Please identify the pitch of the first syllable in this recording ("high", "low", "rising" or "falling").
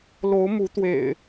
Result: rising